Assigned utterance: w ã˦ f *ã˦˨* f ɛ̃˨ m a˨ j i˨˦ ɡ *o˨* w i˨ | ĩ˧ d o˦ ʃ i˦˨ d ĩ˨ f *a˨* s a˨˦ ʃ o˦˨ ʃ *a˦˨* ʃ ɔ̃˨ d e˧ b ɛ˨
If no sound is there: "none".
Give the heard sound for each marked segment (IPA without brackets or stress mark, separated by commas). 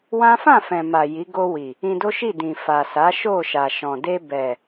ã˦˨, o˧, a˨, a˨